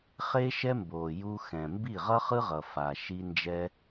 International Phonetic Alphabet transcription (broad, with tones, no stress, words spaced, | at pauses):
χe˦ʃɛ˦mbo˨ ju˧ xɛ̃˨ mbi˦˨ʁʌ˦χɯ˦ʁʌ˨ fa˨ʃi˧ nd͡ʒɛ˧